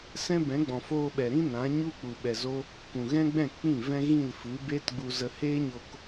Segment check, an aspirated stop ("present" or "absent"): absent